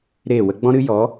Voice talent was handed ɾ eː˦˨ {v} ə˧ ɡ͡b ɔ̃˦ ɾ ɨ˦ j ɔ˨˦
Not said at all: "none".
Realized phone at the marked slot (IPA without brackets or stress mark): w